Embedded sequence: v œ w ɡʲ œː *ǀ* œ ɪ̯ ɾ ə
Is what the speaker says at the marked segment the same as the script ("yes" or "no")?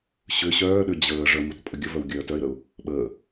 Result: no